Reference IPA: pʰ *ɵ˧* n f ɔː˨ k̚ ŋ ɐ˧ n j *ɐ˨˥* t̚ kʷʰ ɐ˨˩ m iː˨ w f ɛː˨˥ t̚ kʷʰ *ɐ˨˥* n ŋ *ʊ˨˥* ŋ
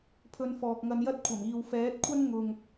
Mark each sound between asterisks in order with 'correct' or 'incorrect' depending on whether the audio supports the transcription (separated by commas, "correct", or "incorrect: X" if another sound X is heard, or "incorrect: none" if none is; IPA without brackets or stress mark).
correct, incorrect: ɐ˥, incorrect: ɐ˥, incorrect: ʊ˨